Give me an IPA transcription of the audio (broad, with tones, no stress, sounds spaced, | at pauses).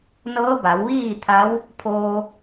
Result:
n ɤː˧˥ b a˩˧ w ʋ iː˥˨ t̪ʰ a˧˥ w | pʰ oː˧